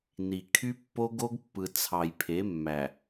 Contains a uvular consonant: no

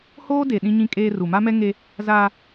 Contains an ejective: yes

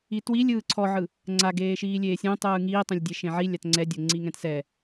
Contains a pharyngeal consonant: yes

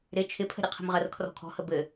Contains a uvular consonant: yes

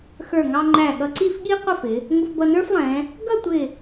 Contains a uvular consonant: yes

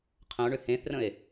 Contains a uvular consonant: yes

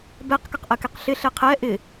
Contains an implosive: no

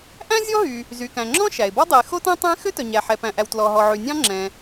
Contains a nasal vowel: yes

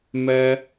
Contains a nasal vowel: no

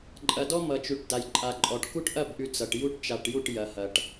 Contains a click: yes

